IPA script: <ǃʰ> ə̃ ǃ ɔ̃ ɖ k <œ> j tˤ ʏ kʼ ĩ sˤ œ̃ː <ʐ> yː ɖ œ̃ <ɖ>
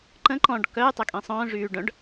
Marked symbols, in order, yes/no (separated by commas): no, yes, yes, yes